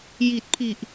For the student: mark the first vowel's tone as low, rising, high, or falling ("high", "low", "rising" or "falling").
low